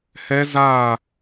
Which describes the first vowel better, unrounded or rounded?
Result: unrounded